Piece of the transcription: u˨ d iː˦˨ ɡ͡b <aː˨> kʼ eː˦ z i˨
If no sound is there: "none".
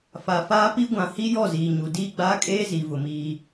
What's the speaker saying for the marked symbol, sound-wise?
aː˦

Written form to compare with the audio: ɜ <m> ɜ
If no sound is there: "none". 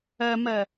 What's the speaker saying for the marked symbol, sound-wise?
m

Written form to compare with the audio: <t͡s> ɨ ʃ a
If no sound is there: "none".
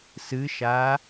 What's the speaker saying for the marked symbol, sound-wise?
s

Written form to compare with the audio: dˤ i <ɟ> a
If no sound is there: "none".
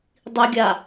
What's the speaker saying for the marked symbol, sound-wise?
ɡʲ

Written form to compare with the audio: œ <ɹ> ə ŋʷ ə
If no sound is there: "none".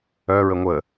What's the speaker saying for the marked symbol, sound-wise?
ɹ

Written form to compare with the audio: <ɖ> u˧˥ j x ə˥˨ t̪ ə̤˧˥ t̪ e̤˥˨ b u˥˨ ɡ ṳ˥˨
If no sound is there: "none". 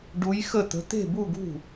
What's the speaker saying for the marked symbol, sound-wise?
ɖ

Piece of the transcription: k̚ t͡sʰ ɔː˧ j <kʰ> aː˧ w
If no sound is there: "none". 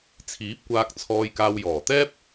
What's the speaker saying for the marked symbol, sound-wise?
k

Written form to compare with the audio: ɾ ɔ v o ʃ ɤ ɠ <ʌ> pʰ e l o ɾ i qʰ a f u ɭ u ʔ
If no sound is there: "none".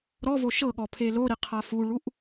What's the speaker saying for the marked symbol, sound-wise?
ɔ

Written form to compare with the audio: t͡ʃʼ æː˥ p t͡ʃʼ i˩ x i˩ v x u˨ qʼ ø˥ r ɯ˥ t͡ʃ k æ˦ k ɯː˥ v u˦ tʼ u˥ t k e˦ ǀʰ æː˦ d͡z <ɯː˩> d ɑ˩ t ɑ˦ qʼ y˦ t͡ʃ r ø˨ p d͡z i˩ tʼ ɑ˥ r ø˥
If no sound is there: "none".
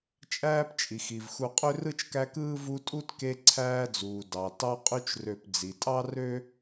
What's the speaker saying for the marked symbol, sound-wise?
uː˩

